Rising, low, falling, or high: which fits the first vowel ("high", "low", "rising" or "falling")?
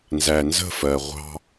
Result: low